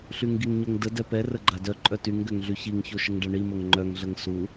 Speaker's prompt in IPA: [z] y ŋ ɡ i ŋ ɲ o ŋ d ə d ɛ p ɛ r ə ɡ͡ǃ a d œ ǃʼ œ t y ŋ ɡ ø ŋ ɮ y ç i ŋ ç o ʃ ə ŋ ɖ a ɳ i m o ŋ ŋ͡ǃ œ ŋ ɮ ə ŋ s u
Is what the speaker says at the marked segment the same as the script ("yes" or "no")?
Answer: no